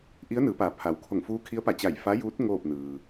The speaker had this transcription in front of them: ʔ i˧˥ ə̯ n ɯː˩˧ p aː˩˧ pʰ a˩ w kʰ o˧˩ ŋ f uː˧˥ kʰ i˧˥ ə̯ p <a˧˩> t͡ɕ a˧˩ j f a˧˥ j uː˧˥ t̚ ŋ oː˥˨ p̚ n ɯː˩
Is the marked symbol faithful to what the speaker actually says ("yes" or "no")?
yes